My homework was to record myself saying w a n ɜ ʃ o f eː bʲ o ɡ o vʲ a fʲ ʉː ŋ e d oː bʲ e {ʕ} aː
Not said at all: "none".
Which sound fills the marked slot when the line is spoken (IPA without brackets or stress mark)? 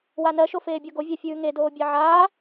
ʕ